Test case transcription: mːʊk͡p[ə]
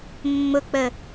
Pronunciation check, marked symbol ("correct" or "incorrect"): correct